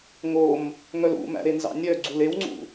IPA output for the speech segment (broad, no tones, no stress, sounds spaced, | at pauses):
ŋ o m | ŋ œ l ṵ m æ̰ ɾ e n z ɑ̰ nʲ œ ɡ͡ǀ u l e w ŋ͡ǀ ṵ